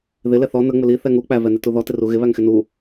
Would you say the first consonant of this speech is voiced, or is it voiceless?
voiced